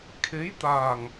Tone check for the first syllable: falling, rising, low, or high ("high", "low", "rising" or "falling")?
rising